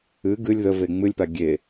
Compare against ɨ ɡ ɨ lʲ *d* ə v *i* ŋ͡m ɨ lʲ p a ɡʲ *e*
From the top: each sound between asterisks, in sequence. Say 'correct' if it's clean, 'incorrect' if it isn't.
incorrect: ð, incorrect: e, correct

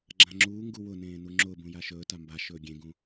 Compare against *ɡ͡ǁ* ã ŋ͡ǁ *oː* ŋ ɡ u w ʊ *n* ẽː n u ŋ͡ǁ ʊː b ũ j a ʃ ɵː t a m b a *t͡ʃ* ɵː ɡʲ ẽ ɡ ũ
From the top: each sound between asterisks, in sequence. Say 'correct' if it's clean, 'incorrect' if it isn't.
correct, incorrect: uː, correct, incorrect: ʃ

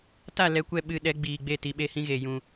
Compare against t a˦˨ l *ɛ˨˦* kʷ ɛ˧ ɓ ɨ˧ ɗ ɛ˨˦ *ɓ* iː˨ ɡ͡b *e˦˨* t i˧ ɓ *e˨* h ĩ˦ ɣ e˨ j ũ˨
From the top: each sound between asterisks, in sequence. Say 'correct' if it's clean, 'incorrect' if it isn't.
correct, incorrect: ɡ͡b, correct, incorrect: e˦

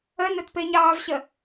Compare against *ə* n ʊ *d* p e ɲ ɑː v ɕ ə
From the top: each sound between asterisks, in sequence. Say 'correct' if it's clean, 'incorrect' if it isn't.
correct, incorrect: t

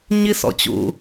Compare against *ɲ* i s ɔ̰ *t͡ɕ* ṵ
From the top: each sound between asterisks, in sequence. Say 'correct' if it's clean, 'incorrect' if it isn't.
correct, correct

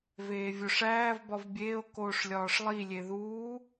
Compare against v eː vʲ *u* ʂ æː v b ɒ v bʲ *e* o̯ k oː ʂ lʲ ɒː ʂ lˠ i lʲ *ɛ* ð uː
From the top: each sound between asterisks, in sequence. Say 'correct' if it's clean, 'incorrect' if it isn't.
incorrect: o, incorrect: eː, incorrect: e

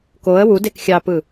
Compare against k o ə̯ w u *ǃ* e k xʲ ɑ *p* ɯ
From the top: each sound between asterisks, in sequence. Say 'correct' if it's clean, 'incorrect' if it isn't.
incorrect: d, correct

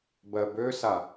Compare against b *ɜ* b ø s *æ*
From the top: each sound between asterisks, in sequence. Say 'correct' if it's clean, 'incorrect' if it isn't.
correct, incorrect: a

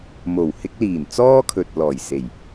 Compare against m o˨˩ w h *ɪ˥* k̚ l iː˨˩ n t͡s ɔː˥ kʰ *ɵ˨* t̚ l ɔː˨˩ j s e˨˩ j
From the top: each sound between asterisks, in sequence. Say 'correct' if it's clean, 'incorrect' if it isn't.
incorrect: ɪ˧, correct

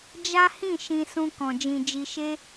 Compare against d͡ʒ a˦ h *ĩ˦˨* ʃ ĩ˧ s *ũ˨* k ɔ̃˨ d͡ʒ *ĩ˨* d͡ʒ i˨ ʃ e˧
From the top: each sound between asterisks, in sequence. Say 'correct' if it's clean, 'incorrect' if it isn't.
correct, incorrect: ũ˧, correct

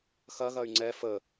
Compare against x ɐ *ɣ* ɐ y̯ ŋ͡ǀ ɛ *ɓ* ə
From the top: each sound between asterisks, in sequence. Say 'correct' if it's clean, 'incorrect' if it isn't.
correct, incorrect: f

